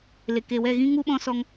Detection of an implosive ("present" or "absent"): present